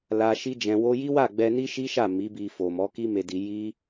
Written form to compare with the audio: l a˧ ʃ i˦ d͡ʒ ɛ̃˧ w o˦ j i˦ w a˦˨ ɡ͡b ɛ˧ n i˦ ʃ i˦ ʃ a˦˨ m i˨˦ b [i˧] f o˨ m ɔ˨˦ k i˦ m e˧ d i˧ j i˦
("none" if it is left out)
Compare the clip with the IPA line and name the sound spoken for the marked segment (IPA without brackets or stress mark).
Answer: i˧